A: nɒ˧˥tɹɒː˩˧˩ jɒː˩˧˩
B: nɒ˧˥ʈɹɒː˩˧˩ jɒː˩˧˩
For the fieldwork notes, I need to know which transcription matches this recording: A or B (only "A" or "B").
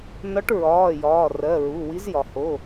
B